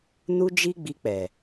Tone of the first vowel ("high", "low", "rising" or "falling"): high